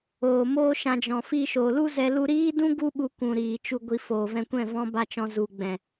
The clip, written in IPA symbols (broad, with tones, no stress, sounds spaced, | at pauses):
oː˨ m oː˦ ʃ ã˧ d͡ʒ ɔ̃˨ f i˧ ʃ oː˨ l u˦ z ɛ˧ l u˧ ɾ iː˦ d ũ˦ ɡ u˦ ɓ u˧ kʷ ũ˨ ɾ iː˨ t͡ʃ u˧ ɡʷ i˧ f oː˨ v ɛ̃˧ kʷ ɛ̃˦˨ v ɔ̃˦ b a˦ t͡ʃ ɔ̃˧ z u˨ ɡ͡b ɛ̃˨